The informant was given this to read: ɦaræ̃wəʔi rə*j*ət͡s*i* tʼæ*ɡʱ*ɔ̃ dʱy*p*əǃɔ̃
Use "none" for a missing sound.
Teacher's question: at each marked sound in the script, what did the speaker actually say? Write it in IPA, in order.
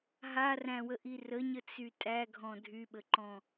ɲ, y, ɡʱ, ɓ

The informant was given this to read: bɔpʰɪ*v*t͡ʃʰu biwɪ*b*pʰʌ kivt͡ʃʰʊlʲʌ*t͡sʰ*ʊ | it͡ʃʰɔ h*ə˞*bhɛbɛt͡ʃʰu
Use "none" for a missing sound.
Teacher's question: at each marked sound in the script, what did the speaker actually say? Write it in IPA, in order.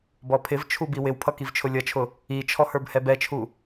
v, w, t͡ʃʰ, ə˞

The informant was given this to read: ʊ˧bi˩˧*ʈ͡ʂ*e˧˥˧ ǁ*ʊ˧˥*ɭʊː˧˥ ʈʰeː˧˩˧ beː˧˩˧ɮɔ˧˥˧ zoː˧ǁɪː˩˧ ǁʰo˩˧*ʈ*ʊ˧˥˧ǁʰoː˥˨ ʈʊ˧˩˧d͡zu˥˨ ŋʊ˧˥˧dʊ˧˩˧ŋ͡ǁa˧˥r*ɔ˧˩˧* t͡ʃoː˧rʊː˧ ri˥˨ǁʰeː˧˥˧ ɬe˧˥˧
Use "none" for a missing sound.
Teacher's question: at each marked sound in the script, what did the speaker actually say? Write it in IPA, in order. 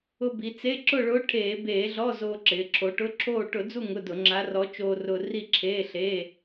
t͡s, ʊ˥˨, ʈ, ɔ˧˥

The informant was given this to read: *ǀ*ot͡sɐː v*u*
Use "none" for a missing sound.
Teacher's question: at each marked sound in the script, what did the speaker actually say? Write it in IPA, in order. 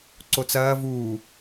ǀ, uː

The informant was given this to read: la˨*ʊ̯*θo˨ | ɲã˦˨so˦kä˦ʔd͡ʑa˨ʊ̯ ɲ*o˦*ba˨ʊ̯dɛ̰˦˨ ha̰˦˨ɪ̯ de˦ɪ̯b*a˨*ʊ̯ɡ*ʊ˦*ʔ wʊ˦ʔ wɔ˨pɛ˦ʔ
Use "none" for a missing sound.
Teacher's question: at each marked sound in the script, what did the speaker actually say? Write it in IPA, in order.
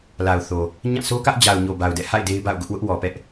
ʊ̯, o˨, a̰˦˨, ʊ˦

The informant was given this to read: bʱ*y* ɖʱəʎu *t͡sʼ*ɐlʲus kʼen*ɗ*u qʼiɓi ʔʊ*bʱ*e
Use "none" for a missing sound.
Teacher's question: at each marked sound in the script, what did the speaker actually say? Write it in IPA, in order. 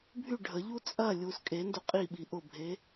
y, t͡sʼ, d, bʱ

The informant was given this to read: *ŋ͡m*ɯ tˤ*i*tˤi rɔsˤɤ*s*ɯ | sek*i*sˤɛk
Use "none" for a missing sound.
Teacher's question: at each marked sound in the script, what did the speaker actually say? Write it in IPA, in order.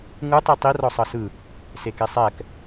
ŋ, i, s, e

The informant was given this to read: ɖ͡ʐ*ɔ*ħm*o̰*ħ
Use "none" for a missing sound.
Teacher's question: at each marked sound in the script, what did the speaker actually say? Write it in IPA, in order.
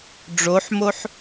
o, o

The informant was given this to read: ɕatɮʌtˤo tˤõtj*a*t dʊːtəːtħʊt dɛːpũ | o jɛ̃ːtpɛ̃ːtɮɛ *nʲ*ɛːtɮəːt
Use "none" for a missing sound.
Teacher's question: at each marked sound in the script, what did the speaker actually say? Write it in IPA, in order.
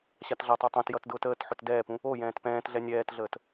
ʌ, nʲ

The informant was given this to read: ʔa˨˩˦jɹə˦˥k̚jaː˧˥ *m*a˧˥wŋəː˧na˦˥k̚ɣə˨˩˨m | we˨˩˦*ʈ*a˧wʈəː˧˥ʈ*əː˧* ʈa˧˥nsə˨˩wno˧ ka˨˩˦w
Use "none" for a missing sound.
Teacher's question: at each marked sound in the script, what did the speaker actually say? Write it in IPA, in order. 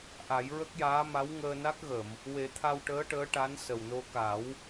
m, t̪ʰ, əː˧˥

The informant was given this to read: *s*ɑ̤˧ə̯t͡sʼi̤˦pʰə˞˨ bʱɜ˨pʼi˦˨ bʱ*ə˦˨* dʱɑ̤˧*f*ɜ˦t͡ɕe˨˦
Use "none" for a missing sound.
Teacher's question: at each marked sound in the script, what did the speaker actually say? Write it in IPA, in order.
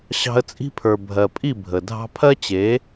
ɕ, ə˨, pʰ

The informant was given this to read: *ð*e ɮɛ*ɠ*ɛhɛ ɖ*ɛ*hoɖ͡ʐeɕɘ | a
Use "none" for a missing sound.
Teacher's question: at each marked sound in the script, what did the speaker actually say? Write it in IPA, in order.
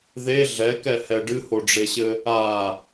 ð, k, ɨ

